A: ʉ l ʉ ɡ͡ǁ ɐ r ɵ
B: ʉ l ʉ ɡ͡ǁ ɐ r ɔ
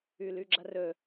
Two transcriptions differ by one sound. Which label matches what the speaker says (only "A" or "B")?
A